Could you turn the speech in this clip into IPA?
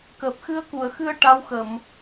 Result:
kəː˨˩p̚xɨ˧ə̯ku˨˩˨ə̯xɨ˧ə̯ ʈa˧˥wxə˨˩˨m

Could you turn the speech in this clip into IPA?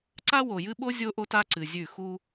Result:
ǀa˦wo˨jɨ˦ɓo˦ zʲo˦ʔo˦t a˦ǀɨ˨zʲʉ˦˨ xu˦

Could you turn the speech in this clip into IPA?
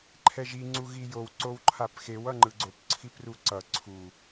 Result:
ǃʰɛʒi ŋ͡ǀuɣijow ǀowǃʰapxew ʌŋ͡ǃɯɡ͡ǀop ǀʰipruǀʌ ǀʰu

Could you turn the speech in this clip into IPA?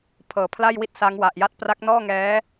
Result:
pʰɤː˩˦pʰla˥˩j wi˥˩t̚ sa˦˥ŋwa˨˩ʔ ja˦˥t̚pra˦˥k̚nɔː˥˩ ŋɛː˦˥

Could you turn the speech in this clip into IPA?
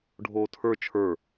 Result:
ɖʱoːtʰə˞ t͡ʃʰə˞

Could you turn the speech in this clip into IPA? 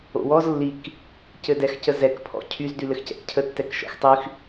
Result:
o̰wɔz lːik | cɘdɛxcəzɛk pʰɔ̰cʰyz dylɘxcɛ̰kcʰə tːɛkʃɔ̰xtˤyx

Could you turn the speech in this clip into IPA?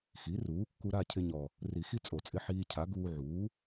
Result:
xi˩˥ruː˩˥kːu˧ ɾa˥˨cʰɪ˧ɲɔ˨˩ | ri˨˩˦xi˧ t͡sʼo˨˩˦t͡sʼɪ˧ ħiː˧cʰa˩˥ ɡuː˧ʕuː˩˥

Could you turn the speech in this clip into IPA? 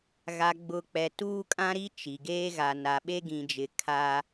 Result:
ɣa˨ɡ͡bʊ˨ k͡pɛ˨tuː˦kʼã˦ɾi˦ t͡ʃi˨ɡeː˦ ɣa˨ na˨ɓe˦ɡĩ˨d͡ʒɪ˨ kʰa˦

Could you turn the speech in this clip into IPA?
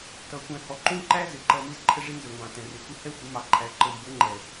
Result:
tʌ˨ kʷɛ̃˨hɔ˨ǃũ˦ǃæ˦ zɪ˨ǃʌ˨ mi˦zǃʰə˦ʐi˦nzə˨ ŋʷɑ̃˨tɛ̃˨ rɪ˨kʷɪ˦ hɛ˦ xʷɪ˨˦mɑ˨ǃʰæ˨˦ ǃə˨mbʊ˨˦ŋ͡ǃɛ˨

